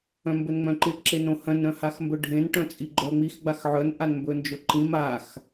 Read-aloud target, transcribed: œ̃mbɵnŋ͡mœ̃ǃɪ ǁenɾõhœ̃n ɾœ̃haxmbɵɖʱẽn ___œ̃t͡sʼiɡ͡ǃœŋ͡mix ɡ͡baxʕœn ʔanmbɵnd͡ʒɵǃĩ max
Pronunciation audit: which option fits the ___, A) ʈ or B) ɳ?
A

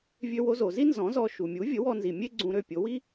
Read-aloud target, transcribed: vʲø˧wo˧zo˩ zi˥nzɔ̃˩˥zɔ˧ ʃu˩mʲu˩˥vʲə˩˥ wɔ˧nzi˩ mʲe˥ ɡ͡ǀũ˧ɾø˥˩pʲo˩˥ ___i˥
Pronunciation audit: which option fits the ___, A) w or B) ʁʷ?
A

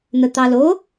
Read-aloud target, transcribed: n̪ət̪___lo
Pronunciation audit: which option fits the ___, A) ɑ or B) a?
A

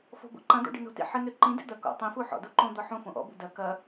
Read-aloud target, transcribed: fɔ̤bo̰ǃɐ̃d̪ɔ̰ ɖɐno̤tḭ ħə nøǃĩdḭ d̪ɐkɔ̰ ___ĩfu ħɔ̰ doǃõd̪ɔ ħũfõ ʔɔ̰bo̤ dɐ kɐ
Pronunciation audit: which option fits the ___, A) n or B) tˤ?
B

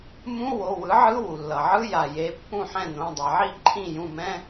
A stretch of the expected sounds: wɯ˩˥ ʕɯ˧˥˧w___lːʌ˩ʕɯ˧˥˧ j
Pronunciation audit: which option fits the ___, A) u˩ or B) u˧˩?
A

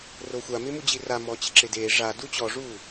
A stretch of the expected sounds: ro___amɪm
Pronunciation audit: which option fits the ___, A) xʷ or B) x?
A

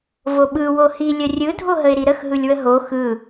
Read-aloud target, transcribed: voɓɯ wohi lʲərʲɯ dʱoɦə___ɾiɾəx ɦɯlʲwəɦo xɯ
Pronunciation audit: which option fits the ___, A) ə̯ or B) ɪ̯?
B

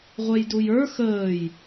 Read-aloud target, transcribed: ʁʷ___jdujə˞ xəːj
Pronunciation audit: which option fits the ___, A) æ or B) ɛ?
B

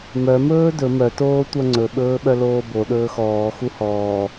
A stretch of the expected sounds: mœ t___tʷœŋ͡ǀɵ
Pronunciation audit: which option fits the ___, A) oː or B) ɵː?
A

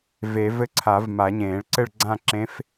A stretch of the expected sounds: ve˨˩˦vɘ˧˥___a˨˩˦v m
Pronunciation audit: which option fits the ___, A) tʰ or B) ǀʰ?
B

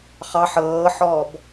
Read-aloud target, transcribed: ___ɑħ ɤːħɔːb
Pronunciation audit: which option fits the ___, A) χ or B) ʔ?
A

